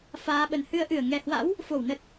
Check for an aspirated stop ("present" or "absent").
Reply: absent